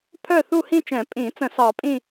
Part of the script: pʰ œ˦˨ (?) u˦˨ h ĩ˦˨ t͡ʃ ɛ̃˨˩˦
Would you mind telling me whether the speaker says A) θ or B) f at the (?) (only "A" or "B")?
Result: A